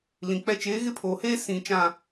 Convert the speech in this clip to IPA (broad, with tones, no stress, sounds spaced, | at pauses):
l ĩ˨ k͡p ɛ˦ t͡ʃ eː˨˦ ɣ ɪ˦ pʰ oː˨ h eː˦ s ĩ˨ t͡ʃ ã˨